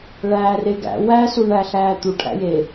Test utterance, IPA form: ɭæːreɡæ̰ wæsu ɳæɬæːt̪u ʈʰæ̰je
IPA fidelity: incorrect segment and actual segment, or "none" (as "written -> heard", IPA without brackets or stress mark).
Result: none